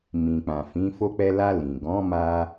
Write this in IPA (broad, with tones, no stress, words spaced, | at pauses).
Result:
mĩ˨k͡pã˨fĩ˨˦ fo˧k͡pɛ˧la˧ lĩ˨ ɡɔ̃˨˦ma˧